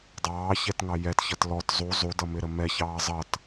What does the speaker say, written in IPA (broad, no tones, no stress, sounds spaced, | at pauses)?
dˤ ɑː ç ɛ t ŋ ɑ j ɛ t ç ʌ t l ɔ t zˤ u zˤ u d ʌ m ɪ ɾ ə m ɛ ç ɑː zˤ ʌ t